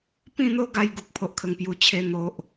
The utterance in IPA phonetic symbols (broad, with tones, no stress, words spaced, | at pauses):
pĩ˥˧n̪o˦ɡa˧j ɡu˨k̚pʰo˨ʔkʰə˨˩ŋ pju˨˩t͡ɕʰe˧ n̪o˨ʔ